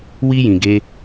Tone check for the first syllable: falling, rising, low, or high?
high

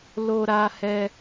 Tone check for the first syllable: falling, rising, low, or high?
high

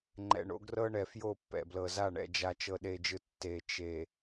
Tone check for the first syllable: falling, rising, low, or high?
low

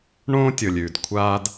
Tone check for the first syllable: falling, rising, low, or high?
high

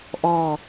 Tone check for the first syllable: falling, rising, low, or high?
falling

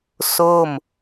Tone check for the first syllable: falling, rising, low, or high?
falling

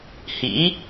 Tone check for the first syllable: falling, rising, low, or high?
rising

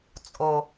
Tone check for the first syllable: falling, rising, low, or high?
low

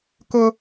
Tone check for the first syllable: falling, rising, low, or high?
high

